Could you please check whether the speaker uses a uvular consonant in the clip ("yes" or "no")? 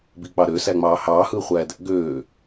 yes